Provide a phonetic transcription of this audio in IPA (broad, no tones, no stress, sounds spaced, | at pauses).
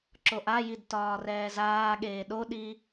ǁ o ʔ a j i d t ɒː r ɛː z aː ɠ eː ɗ o ɗ i